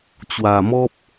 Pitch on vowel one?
low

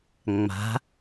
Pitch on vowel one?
rising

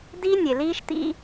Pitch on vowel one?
high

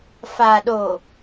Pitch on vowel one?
low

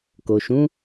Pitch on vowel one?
low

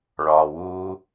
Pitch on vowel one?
low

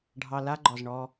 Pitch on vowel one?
low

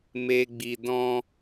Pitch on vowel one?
low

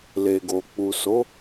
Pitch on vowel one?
low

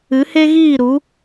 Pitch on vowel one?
rising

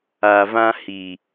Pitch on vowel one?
low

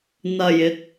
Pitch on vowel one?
low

